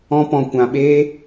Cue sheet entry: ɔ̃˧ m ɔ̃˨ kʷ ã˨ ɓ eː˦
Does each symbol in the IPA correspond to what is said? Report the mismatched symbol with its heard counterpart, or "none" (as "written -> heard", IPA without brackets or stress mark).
m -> p